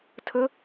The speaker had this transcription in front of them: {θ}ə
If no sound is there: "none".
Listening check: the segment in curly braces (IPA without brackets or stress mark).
tʰ